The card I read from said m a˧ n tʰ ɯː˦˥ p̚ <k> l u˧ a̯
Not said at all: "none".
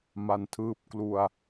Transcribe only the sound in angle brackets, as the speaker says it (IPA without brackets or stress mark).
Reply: k